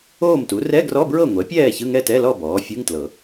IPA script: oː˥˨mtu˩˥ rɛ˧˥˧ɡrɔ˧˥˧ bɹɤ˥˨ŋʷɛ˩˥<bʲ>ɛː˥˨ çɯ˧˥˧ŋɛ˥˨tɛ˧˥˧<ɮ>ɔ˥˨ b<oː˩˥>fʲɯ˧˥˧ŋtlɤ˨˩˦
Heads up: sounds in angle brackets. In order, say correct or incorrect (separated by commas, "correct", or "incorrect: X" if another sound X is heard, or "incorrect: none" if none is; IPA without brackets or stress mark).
incorrect: pʲ, incorrect: l, incorrect: ɔː˩˥